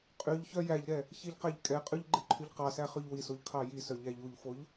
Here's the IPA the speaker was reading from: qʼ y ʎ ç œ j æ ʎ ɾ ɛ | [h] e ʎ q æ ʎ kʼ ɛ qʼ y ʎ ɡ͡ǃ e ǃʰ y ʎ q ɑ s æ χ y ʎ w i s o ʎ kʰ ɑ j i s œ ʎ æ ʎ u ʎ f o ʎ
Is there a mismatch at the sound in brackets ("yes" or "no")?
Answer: yes